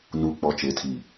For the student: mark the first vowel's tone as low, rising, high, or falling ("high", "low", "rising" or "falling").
low